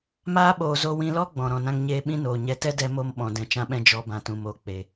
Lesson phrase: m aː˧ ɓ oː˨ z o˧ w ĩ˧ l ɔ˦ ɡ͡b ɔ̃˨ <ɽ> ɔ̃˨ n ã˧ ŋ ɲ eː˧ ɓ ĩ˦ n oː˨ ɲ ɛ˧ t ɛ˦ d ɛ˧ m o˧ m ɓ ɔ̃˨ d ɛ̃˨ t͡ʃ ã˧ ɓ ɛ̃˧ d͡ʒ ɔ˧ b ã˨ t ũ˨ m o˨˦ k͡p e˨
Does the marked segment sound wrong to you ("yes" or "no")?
yes